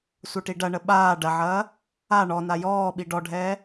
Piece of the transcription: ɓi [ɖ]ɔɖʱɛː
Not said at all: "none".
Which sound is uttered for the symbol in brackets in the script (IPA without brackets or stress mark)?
ɖ